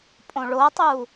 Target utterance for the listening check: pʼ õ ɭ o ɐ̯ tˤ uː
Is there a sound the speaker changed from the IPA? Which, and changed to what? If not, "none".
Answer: none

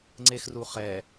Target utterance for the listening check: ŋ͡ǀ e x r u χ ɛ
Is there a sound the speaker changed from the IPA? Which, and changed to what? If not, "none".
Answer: none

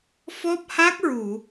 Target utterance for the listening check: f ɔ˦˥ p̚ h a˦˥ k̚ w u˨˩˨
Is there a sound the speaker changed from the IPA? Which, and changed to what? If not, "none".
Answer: w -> ɹ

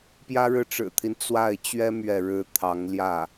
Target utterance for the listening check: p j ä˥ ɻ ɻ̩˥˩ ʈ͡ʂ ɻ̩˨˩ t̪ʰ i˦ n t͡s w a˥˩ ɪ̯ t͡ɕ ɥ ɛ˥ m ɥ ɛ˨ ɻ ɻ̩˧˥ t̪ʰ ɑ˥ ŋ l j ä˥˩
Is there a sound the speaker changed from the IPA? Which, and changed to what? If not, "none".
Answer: ɑ˥ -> ɑ˧˥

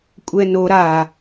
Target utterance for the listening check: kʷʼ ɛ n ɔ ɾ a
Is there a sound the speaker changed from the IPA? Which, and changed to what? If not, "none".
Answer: ɔ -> o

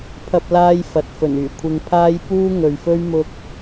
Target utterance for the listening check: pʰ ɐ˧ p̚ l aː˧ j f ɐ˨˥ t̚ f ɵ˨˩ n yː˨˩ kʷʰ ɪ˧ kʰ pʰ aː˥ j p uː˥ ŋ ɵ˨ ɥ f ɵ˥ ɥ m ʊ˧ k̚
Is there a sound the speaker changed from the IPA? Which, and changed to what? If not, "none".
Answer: kʰ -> ŋ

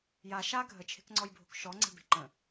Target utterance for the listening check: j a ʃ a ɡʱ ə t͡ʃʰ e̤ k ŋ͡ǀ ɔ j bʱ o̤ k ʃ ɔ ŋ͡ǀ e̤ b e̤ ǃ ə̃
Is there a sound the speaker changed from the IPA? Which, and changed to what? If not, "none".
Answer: none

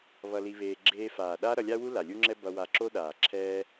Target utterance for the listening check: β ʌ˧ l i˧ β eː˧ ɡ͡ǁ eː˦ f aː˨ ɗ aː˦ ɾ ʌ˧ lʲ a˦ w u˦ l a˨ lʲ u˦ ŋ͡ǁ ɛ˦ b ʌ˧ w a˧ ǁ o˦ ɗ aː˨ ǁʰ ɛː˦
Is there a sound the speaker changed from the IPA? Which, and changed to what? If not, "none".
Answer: none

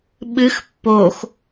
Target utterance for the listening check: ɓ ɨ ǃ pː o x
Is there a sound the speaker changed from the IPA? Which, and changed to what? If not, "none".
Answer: ǃ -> x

